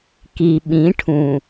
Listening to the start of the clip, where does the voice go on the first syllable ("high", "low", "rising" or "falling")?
low